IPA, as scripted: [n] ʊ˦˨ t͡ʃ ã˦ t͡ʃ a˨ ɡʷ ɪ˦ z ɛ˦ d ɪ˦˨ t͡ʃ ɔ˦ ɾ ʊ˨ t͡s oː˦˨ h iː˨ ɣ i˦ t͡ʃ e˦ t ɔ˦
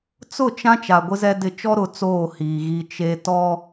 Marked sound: incorrect: t͡s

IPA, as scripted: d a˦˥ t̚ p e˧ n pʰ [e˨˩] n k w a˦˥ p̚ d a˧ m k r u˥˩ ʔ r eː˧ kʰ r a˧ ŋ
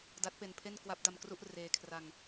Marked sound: incorrect: e˥˩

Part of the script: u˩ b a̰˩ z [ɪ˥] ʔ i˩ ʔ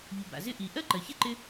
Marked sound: correct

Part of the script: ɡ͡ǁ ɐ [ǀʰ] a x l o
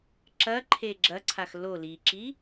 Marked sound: correct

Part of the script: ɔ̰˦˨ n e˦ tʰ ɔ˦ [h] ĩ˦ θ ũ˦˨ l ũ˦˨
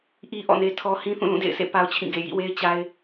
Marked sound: correct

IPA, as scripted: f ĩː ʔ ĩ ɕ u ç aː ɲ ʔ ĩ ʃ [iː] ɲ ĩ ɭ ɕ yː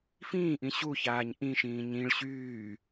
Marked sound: incorrect: ĩː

